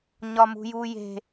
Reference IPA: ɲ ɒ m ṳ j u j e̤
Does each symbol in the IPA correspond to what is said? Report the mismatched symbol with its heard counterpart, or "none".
none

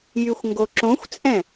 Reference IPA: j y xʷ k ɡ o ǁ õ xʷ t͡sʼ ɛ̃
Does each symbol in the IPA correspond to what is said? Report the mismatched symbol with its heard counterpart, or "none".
k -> ŋ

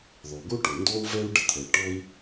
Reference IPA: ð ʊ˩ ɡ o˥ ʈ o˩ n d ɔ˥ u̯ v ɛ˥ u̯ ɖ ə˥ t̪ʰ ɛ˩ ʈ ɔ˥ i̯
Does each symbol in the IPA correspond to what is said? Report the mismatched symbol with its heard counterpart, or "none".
ʊ˩ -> ɔ˩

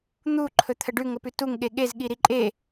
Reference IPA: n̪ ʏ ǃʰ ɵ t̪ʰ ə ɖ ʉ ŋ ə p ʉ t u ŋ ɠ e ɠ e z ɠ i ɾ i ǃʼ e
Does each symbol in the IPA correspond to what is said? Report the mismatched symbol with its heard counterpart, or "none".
ʏ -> u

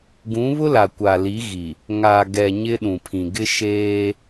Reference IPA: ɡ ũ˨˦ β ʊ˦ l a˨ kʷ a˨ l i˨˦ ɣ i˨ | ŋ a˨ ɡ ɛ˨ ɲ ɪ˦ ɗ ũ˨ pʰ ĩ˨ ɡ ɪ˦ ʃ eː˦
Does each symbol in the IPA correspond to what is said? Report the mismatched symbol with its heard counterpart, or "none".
none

